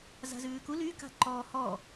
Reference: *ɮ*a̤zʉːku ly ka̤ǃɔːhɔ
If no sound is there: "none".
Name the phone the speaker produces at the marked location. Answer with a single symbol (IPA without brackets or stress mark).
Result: z